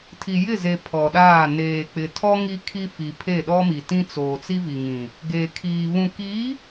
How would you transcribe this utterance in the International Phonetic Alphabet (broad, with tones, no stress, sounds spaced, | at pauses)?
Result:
tʰ i˨ j ɪ˦˨ z e˨ pʰ ɔ˨ ɗ aː˦˨ n eː˨ k͡p ɪ˨ tʰ ɔ˦ ŋ i˦ kʰ i˦ f i˨ pʰ e˦˨ ɗ ɔ˦ m i˨ t ĩ˦ t͡s oː˨ t͡s i˦ v i˨ ŋ ĩ˨ | ɡ e˨ kʰ iː˨ β ũ˨ k i˨˦